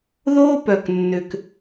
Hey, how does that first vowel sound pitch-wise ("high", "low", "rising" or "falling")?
high